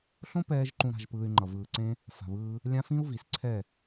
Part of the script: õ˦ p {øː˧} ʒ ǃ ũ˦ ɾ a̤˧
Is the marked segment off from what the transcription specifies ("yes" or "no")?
yes